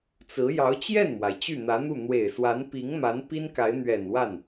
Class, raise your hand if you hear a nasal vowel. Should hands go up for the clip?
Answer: no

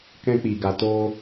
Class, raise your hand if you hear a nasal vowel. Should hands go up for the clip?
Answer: yes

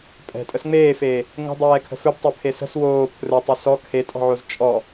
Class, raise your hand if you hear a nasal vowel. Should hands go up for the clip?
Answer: no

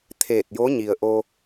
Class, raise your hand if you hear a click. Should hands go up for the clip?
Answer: no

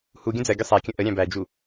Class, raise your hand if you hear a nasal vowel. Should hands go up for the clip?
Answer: yes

